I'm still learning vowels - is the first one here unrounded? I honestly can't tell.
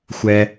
yes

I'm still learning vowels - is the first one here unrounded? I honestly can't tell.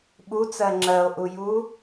no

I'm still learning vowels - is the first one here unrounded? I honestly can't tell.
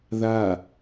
yes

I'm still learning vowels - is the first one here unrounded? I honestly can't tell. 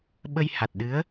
yes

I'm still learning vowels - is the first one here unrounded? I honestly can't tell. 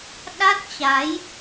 yes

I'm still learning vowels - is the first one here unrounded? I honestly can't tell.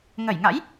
yes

